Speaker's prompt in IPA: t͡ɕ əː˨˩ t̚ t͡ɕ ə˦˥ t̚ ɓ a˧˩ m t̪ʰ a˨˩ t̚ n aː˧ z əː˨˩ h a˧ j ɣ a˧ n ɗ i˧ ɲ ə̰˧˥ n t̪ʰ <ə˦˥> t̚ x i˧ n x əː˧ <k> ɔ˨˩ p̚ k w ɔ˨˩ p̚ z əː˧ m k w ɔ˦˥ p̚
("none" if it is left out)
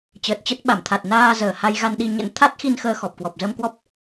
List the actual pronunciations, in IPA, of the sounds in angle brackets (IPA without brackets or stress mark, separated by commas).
a˦˥, x